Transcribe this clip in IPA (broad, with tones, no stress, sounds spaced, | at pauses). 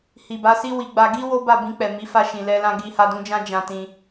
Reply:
h i˨ b a˨˦ s i˦ w i˧ ɡ͡b a˧ ɡ i˦ w o˦ b a˦˨ b ĩ˧ k͡p ɛ˨ m i˨˦ f a˧ ʃ ĩ˨ l ɛ˧ l ã˧ ɡ i˧ h a˧ d ũ˧ d͡ʒ ã˦ d͡ʒ ã˧ t ĩ˧